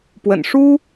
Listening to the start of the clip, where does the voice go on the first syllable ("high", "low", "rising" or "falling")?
low